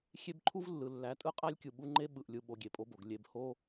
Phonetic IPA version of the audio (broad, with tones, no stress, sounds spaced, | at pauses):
xʲ e˦ b ǃʰ u˦ v lː ɯ˨ lː æ˨ tʼ ɯ˦ qʼ æ˦ lʲ kʲ ɯ˨ ɓ u˦ ŋ͡ǃ e˦ ɓ ɯ˨ ʔ lʲ ɯ˨ ɓ o˨˦ ɡʲ e˨ pʼ o˦ b o˨ ɡ lʲ e˨ b h o˦